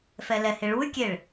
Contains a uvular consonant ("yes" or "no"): no